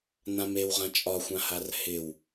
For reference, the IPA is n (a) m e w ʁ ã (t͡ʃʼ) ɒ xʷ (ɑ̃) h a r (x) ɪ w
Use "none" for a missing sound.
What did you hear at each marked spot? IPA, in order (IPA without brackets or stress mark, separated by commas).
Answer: ã, t͡ʃʼ, ã, h